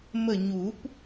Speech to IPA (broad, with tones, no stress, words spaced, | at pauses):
mə˦˨ɲu˨˩˦p